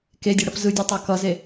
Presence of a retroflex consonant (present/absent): present